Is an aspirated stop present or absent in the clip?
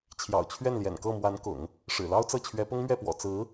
present